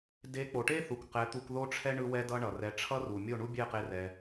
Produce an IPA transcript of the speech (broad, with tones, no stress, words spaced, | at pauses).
de˨˦k͡po˨ʈe˦θu˨k qɛ˨˦t̪u˧kðo˦ʈ͡ʂʰɛ˦ ɳɯ˧ wɛ˦dʌ˦ɳʌ˨ rɛ˧ ʈ͡ʂʰʌ˦ru˨ mʲo˦˨ɳu˦bʲɛ˦˨qe˧ rɛ˧